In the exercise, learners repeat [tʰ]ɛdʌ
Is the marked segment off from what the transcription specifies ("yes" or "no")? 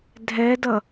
yes